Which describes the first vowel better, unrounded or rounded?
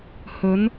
rounded